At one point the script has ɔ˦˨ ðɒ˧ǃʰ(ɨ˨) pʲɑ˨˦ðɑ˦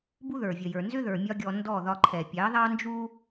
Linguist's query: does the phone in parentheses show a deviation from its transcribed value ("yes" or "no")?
yes